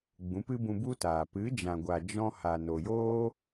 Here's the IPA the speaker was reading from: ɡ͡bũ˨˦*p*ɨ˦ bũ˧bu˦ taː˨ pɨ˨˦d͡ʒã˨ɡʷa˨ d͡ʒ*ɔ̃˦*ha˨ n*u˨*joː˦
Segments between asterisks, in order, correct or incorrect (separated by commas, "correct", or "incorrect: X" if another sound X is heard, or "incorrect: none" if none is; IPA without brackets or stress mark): correct, correct, incorrect: o˨